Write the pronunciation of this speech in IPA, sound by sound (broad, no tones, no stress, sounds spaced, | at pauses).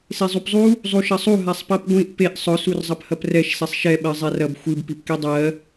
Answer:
s e zˤ u p zˤ u | zˤ u ʃ ɐ sˤ u ɦ a sˤ p ɜ p ɡʷ ĩ ʔ p e ʔ sˤ ʊ s u r zˤ ɐ p h ɐ p r ɛ ʃ s ɛ sˤ ʃ ɛ ɓ ɜ zˤ ɛ r ɐ b xʷ ɨ b p i p k i dˤ ɜ